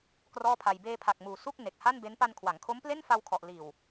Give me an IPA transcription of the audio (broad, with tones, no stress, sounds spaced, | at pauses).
k r ɔː˥˩ pʰ a˧ j b eː˧ pʰ a˨˩ k̚ m uː˩˦ s u˥˩ k̚ n e˨˩ k̚ h a˥˩ n b e˦˥ n p a˧ n kʰ w a˩˦ ŋ kʰ o˦˥ m p l e˥˩ n f a˧ w kʰ ɔ˨˩ ʔ l iː˨˩ w